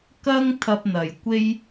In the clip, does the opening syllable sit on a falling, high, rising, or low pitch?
high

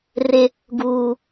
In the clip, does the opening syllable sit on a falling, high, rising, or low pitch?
high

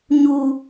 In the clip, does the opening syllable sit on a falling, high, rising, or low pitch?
low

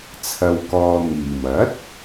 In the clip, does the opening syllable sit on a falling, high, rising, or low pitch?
low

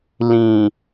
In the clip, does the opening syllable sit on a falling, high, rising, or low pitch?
low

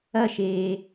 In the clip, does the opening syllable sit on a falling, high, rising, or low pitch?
falling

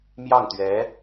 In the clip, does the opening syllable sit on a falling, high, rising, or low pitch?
falling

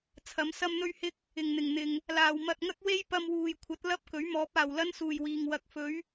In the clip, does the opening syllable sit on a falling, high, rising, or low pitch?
rising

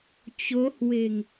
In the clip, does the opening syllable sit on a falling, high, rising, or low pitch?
rising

